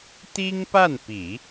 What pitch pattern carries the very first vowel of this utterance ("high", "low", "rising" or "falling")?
high